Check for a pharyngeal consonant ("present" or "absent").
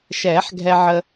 present